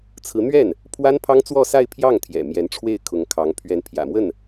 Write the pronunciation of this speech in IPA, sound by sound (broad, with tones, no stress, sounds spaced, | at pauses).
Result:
t͡sʰ ɹ̩˧˥ n̪ ɥ ɛ˥˩ n | pʰ w a˥ n pʰ ɑ˥ ŋ t͡s w ɔ˥˧ s a˥˧ ɪ̯ pʰ j ɑ˥˩ ŋ t̪ʰ j ɛ̰˨˩ m j ɛ˧˥ n ʈ͡ʂʰ w e˥˩ ɪ̯ kʰ ʊ˧˥ ŋ kʰ ɑ˧˥ ŋ pʰ ɥ ɛ˧˥ n pʰ j ä̰˨˩ m w ə˥˩ n